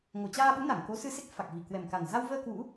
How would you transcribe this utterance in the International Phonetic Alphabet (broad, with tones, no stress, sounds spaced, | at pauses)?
ŋ o˨˩ t͡ɕ aː˧ ɓ u˨˦ n a˧˩ ŋ k o˨˦ s ɨ˧ s e˦˥ k̚ f a˨˩ k̚ v i˧˩ k w ɛ˨˩ m k a˨˩ n z a˧ w v əː˧ k w ṵ˧˥